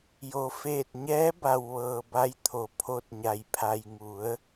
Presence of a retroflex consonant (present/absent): absent